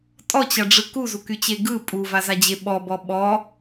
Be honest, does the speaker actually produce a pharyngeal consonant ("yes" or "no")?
no